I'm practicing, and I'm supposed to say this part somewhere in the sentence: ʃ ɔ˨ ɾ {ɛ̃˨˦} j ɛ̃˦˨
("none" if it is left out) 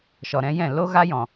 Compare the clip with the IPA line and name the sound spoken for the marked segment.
ɛ̃˨˦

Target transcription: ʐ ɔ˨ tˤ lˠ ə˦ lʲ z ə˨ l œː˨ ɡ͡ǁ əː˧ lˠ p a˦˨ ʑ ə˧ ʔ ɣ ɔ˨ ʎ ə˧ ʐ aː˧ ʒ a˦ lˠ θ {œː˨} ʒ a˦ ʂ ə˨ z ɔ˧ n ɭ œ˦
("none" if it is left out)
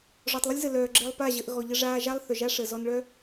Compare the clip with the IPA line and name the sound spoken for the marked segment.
œ˨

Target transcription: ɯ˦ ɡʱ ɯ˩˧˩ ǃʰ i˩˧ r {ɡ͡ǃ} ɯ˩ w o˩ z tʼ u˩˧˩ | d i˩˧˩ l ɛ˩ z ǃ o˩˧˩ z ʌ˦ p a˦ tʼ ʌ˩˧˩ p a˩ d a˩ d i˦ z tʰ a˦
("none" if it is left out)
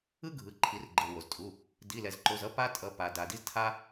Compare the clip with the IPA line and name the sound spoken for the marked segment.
ɡ͡ǃ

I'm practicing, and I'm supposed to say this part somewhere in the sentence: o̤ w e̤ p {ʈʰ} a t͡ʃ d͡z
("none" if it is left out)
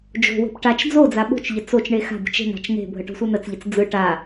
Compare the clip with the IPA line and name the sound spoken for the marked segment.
ʈ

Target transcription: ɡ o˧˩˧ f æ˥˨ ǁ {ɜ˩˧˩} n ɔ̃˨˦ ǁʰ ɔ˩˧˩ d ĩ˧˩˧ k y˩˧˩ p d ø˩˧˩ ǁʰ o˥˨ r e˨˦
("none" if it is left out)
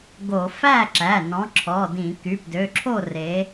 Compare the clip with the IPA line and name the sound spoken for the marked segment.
æ˩˧˩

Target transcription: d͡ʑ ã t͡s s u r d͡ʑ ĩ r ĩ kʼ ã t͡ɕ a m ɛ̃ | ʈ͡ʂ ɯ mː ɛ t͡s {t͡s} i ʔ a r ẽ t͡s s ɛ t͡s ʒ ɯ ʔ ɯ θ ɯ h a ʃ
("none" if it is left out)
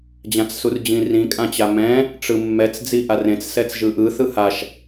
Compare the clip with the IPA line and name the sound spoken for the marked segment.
d͡z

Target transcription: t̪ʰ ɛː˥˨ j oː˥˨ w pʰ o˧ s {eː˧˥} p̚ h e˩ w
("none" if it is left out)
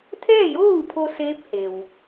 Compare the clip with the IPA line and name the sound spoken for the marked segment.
eː˧˥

